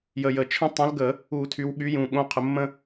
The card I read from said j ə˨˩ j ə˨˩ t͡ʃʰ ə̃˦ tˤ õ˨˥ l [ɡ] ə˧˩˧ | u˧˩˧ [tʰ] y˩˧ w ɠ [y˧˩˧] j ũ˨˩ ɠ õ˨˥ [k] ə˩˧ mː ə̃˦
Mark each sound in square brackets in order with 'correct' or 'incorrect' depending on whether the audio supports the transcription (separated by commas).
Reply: correct, correct, incorrect, incorrect